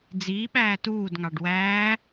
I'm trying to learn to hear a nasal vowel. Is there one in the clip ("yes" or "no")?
no